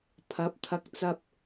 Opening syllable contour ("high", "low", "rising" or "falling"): rising